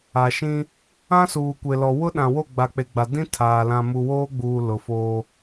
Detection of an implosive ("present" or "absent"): present